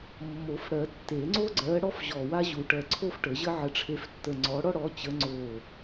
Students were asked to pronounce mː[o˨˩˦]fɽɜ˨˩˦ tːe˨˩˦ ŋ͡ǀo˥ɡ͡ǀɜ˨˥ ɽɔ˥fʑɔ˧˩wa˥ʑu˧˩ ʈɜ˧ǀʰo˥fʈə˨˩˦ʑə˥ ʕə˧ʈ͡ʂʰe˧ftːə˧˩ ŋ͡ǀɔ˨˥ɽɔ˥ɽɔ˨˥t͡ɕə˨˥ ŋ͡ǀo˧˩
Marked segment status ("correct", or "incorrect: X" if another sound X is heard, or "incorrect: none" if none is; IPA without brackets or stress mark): correct